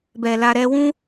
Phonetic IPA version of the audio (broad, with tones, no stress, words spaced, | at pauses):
bɛ˨la˧ɾɛ˦ wũ˦